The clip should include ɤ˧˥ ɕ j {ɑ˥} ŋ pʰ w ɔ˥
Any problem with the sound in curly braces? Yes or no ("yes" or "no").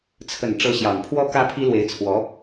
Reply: yes